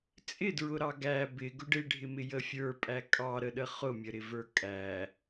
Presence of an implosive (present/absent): present